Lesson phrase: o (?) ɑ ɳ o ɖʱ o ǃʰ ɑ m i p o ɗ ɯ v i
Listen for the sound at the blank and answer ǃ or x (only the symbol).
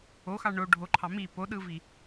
x